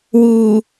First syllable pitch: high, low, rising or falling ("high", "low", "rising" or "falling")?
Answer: low